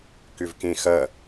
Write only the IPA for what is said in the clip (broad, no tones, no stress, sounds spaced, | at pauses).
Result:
k ʏ v k ẽ x ɐ